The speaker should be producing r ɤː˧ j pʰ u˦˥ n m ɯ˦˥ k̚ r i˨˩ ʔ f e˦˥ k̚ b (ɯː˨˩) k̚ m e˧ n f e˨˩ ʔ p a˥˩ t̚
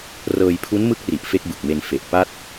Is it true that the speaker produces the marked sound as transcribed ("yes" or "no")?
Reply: no